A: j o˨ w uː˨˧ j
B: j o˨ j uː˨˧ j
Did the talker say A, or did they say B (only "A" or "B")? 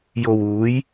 A